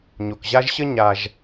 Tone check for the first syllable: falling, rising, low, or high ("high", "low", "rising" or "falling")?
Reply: low